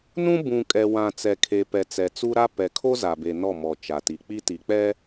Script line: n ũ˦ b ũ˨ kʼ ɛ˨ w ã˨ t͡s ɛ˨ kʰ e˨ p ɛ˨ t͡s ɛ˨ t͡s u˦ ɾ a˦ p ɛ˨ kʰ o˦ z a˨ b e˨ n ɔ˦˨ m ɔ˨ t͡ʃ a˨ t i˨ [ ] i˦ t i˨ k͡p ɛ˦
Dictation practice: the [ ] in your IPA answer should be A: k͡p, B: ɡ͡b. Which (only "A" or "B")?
A